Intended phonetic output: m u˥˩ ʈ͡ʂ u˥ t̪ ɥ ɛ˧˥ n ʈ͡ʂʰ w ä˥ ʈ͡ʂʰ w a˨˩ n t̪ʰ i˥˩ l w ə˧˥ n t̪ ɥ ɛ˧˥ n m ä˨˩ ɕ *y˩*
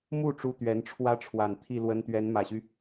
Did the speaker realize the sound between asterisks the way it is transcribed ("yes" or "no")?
no